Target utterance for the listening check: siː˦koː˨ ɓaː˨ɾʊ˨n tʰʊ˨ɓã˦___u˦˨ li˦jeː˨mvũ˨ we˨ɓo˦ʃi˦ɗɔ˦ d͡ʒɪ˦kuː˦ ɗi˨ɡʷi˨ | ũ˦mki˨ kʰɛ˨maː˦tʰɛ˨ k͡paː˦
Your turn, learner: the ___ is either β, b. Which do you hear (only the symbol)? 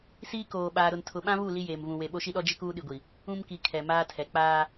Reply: β